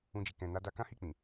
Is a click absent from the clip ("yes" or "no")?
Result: yes